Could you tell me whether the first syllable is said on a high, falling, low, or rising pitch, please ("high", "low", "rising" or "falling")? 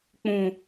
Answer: low